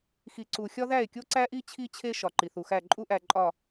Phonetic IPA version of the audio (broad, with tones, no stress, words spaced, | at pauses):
xi˨ǀu˨xʲɒ˦ ðæ˦˨e̯kʲo˦ǀæ˦ʔi˦ t͡ɕʰi˦t͡ɕʰe˦ ʃɒ˨ǃi˨θu˨xæ˦˨ ǃʼu˦ʔæ˨ǃʼɒ˨